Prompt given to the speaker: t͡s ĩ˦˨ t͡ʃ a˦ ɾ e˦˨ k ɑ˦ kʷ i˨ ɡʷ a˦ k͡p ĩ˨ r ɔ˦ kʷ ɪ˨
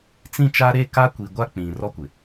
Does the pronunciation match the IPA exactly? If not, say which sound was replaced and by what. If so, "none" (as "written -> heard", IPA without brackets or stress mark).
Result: ɑ˦ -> a˦